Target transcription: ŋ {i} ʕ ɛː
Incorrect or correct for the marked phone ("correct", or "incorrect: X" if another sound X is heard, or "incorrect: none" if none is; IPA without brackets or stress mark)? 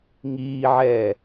incorrect: iː